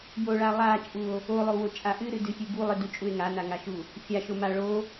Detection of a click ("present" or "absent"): absent